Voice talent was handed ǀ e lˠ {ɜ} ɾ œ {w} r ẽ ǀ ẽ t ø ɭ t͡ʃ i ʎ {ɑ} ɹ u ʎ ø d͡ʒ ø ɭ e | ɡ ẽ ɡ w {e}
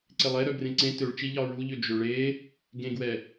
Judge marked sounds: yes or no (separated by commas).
no, no, yes, no